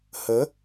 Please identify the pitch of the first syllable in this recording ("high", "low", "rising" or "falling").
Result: rising